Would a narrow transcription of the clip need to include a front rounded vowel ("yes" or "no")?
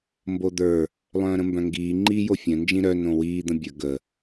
yes